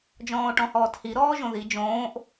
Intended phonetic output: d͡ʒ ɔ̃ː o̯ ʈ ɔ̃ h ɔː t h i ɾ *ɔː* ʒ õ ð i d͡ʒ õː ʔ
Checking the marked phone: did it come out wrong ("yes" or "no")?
no